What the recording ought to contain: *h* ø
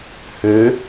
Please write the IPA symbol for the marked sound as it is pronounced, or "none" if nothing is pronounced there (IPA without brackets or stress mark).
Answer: h